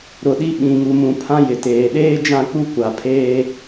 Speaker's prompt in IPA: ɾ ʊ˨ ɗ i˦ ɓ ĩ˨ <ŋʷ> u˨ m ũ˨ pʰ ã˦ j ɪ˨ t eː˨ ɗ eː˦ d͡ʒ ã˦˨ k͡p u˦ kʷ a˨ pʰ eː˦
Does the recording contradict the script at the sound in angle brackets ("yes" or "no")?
yes